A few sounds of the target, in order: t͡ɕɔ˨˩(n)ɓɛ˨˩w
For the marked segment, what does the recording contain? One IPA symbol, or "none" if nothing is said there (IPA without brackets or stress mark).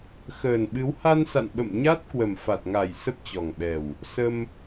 ŋ